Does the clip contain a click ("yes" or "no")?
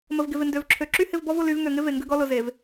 yes